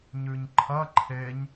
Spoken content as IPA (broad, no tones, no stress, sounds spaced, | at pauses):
ɲ ʉ ɲ ǃʰ ɐ ǃʰ e ɲ